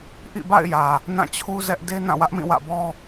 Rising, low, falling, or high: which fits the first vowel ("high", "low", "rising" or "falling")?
falling